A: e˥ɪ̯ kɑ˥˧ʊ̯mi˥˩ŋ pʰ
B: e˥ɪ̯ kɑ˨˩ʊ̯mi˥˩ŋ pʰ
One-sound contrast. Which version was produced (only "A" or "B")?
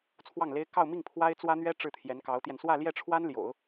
A